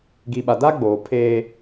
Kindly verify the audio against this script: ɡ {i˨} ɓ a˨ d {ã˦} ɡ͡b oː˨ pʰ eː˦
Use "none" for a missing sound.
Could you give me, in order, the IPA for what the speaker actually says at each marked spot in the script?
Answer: i˨, a˦

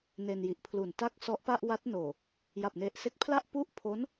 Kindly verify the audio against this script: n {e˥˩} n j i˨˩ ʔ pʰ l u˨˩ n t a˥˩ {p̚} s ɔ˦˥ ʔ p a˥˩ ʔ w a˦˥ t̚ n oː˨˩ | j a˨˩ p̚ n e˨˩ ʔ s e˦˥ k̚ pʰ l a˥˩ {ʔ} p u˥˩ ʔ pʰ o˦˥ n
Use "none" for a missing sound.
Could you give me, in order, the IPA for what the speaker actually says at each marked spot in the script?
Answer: e˧, k̚, ʔ

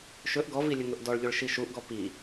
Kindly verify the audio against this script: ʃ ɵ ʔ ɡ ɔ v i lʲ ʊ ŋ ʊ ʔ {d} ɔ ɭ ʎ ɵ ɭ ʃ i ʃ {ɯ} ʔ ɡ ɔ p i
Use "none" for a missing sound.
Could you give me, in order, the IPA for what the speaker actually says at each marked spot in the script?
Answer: d, u

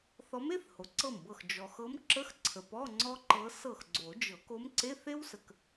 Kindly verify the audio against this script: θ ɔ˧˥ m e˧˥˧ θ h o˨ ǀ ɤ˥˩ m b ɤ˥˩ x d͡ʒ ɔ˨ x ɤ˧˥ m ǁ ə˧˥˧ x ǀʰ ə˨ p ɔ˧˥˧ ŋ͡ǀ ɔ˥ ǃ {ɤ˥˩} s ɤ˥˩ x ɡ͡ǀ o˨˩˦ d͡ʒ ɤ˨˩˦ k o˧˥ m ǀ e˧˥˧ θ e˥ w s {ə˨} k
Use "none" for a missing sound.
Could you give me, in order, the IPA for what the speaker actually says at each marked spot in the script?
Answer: ɤ˧˥, ə˨

